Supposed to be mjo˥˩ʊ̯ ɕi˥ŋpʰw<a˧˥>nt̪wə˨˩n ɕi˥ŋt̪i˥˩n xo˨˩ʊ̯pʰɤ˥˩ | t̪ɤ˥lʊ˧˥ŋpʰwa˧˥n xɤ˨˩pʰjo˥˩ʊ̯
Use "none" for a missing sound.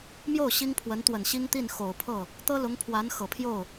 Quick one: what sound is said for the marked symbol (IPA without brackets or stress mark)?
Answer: ə˧˥